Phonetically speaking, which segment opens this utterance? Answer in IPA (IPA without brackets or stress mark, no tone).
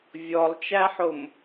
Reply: vʲ